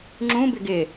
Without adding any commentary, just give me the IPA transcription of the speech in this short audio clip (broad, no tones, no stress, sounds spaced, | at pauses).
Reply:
ŋ͡ǁ ũ b ɪ ɡ ɪ